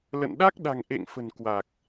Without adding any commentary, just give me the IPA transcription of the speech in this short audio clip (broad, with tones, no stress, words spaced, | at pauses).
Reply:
lə̰˧˨nɗa˦˥k̚ ɗa̤˨˩ŋʔḛ˧˨ŋfə̤˨˩n kwa˨˩k̚